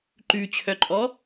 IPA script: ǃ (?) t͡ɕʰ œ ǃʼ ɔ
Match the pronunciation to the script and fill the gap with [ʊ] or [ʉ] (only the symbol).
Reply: ʉ